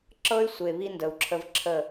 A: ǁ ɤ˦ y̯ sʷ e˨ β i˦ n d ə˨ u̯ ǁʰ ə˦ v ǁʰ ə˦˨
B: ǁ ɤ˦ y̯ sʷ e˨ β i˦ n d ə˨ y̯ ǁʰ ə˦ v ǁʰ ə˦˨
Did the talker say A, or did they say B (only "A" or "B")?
A